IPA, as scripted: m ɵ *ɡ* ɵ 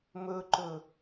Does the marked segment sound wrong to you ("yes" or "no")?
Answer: yes